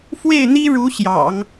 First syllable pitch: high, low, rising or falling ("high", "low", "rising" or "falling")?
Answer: falling